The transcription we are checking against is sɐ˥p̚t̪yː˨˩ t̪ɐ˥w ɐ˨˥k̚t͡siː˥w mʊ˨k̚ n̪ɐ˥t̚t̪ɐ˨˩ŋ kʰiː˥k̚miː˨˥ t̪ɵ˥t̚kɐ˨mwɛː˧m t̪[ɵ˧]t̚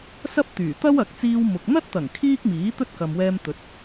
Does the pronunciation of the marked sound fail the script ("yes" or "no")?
yes